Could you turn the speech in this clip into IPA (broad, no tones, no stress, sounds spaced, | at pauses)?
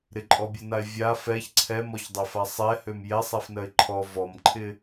ɾ ɪ ǃʼ ɔ bʲ ɜ n a ɪ̯ vʲ a f ɛ ç ǀʰ ɛ m ɔ ç dˤ ɛ f a sˤ ɛ h ø m j ɛ sˤ ɛ f n ɜ ɪ̯ ǃʰ ɔ v ɔ m ǃʰ ɪ